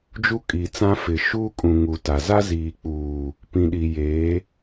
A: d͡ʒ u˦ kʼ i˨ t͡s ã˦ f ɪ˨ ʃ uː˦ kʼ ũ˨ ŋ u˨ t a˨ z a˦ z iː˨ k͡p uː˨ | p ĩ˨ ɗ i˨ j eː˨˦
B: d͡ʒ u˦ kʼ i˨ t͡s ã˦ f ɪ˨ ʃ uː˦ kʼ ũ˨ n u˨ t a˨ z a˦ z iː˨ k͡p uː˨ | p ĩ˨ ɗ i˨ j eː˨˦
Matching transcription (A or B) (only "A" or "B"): A